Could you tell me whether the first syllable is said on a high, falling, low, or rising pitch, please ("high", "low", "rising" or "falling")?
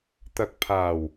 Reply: low